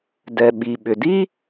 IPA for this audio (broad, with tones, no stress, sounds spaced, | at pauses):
d ɛ˩ ɓ i˩ ɓ ʏ˩ d i˥